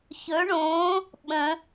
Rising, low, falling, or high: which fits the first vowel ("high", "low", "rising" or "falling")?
rising